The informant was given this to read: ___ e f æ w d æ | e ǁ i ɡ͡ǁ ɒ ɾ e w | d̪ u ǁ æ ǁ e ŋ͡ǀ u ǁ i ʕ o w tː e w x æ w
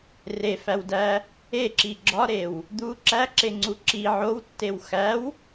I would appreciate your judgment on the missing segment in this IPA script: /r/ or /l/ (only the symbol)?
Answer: r